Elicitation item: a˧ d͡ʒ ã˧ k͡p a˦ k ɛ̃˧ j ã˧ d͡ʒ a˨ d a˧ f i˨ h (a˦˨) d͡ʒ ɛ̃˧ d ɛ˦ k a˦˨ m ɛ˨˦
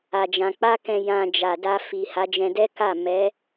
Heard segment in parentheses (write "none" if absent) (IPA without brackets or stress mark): a˨˦